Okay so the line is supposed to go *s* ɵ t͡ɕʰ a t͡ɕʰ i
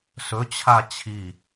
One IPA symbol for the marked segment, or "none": s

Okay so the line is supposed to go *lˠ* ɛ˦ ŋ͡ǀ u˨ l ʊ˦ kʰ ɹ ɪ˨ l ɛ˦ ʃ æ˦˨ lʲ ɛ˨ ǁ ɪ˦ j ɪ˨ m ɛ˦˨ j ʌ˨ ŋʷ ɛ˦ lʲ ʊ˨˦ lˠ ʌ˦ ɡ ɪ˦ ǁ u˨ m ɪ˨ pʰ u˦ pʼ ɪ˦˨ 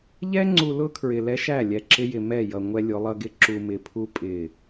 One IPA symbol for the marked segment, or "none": ʎ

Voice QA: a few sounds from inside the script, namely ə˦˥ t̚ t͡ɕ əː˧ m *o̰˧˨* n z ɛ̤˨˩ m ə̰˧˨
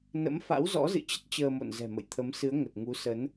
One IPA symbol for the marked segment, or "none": o̰˧˨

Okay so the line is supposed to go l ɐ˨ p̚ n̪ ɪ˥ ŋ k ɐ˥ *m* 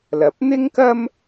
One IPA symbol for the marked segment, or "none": m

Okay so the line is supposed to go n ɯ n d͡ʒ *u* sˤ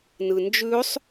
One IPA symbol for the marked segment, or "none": ʉ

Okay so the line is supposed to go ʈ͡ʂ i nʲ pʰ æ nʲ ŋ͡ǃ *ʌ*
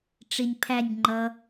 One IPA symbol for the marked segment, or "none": ʌ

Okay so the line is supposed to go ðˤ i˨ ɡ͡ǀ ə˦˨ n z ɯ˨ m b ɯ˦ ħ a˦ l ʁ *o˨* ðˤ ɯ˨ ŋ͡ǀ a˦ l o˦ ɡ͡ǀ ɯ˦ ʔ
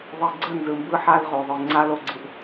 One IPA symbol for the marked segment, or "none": o˨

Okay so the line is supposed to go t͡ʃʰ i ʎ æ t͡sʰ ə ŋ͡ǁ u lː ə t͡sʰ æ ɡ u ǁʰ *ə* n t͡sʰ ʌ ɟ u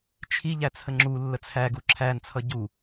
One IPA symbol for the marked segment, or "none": æ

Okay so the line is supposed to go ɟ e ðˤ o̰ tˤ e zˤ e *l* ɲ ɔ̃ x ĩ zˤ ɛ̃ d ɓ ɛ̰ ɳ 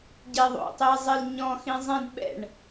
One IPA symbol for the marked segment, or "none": l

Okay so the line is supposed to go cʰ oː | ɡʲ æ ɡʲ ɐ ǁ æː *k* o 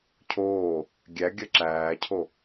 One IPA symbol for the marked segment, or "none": cʰ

